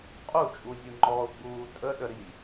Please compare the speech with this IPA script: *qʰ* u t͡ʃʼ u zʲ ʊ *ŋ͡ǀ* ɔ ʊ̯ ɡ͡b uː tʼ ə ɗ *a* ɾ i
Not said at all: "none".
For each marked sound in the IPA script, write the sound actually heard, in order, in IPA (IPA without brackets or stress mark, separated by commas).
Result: qʼ, ŋ͡ǃ, ə